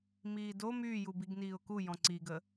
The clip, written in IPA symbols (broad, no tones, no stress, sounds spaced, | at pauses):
m iː d o m yː j u b i ɡ n iː ʊ̯ k u j ɔ̃ ǀ i ɡ ə